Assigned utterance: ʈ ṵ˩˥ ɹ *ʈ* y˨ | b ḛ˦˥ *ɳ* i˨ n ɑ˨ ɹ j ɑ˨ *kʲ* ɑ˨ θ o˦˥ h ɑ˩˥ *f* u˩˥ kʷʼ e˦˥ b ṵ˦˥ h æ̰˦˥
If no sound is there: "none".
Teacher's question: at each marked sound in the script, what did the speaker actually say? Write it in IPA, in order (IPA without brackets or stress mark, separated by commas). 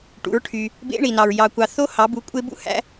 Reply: ʈʰ, ɳ, kʷ, b